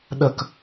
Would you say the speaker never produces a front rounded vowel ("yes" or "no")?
yes